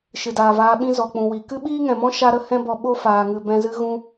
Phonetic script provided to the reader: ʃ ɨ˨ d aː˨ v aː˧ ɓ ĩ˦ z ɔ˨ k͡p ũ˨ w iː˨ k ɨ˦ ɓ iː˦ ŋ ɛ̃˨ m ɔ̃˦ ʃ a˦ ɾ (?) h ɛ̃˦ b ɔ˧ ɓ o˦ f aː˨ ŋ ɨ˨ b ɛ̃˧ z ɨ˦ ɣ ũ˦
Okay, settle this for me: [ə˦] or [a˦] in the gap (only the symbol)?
ə˦